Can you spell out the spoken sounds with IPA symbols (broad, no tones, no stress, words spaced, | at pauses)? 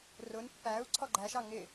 rʊn pːæu̯ ǀʰɔɡ͡ǃæʃɑ ŋɪ